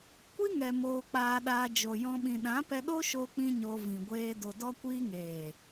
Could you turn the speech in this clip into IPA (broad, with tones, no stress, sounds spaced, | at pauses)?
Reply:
kʷ i˦ ŋ ɛ˨ m oː˧ k͡p aː˧ ɗ aː˧ d͡ʒ o˨ j ɔ̃˧ ɓ ĩ˨ ɗ ã˨˦ p ɛ˧ ɗ o˦ ʃ o˦ k͡p ĩ˦ ɲ o˧ v ĩ˨ ɡʷ eː˧ d o˨ d ɔ˧ kʷ iː˧ ŋ eː˨